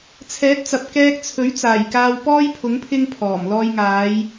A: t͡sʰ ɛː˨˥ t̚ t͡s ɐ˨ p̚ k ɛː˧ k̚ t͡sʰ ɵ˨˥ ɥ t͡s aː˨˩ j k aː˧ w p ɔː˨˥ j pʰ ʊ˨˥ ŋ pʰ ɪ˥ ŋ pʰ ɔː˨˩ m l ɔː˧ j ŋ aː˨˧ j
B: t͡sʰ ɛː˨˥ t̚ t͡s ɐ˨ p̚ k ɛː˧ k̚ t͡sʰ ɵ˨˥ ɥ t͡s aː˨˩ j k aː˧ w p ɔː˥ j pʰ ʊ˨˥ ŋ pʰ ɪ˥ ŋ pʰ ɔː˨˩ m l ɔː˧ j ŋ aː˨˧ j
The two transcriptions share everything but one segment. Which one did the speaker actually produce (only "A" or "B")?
B